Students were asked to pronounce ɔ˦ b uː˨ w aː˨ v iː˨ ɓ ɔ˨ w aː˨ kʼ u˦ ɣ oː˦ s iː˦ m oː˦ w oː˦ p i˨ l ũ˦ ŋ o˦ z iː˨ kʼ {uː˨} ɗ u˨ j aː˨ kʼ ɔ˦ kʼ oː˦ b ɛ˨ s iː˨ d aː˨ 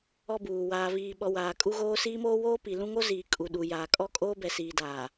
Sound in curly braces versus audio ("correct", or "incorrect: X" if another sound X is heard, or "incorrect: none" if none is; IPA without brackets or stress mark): incorrect: u˨